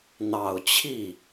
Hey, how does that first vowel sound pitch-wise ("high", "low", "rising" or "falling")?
low